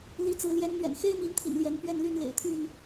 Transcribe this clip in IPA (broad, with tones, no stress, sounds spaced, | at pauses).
l i˨˦ t͡s ɹ̩˨˦ l j ɛ˨˦ n n̪ ɥ ɛ̰˨˩ n x e˦ ɪ̯ m i˨˦ n t̪ʰ ḭ˨˩ n l j ɛ˨˦ n p ɥ ɛ˥˨ n l y˥˨ n l ḛ˨˩ ɪ̯ t̪ʰ y˥˨ n